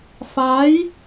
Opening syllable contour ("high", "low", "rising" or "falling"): rising